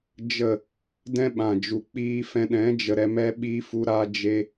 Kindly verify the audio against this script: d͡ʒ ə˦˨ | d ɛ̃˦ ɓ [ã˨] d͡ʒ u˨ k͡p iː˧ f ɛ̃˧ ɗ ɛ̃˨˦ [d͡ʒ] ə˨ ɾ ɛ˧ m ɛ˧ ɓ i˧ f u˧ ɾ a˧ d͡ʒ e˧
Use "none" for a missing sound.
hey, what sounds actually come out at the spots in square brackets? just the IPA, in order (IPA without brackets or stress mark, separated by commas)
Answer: ã˨, d͡ʒ